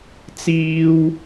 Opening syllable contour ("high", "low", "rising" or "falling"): high